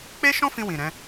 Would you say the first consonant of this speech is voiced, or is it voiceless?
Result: voiceless